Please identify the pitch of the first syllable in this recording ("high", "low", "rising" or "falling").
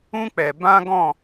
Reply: high